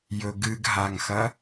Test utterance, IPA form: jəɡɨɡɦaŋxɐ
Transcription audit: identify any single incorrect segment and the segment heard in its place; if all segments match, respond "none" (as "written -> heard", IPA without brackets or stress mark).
ə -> ɵ